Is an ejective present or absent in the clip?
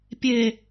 absent